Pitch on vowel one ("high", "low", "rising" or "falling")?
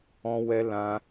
high